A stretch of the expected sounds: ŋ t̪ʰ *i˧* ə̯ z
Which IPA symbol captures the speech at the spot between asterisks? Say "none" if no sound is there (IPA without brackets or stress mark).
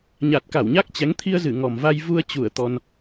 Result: i˧